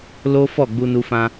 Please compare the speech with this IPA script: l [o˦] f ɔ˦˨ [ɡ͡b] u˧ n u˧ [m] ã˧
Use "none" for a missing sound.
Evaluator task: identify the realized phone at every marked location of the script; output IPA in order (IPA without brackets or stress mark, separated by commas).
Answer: o˦, ɡ͡b, f